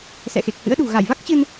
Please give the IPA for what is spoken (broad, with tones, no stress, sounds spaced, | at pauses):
s ɛ̰˧˨ x e˨˩ k̚ h ɨ̰˧˥ ə̯ ɗ ṳ˨˩ ɣ a˧˩ j v a˦˥ k̚ t͡ɕ ɨ˧ n